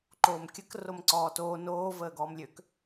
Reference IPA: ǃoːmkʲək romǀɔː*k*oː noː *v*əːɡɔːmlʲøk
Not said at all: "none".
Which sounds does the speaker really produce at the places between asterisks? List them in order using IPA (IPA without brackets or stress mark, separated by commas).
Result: t, v